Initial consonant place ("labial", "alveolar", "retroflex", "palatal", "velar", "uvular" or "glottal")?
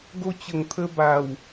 velar